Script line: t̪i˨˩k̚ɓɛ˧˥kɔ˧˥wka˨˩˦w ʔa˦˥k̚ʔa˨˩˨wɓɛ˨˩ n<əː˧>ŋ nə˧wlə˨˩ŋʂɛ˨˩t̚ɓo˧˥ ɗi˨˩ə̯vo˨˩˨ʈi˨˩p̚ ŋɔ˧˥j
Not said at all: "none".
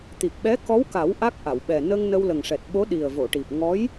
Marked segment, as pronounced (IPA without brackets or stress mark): ə˧